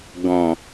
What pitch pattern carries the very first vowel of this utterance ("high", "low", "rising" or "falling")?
low